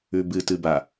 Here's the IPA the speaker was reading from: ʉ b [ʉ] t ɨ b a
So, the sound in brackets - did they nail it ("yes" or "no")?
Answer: no